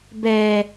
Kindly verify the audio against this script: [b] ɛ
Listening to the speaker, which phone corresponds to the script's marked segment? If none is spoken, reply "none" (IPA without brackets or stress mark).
b